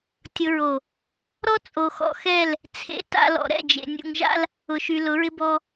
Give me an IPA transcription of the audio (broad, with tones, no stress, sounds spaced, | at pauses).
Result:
tʲ ʊ˨ ɹ o˨ | ɾ ɔ˦ t͡sʼ o˨ x ɔ̰˨ x ɛ˦˨ l | t͡sʰ ḛ˨ t a̰˨ l ɔ̰˨ ɾ ɛ̰˦˨ d͡ʒ ḛ˨ nʲ ṵ˨ ŋ ʒ a̰˦ l | ʊ˨ ʃ y˨ l ʊ˨˦ ɹ ɪ˦ b ɔ˦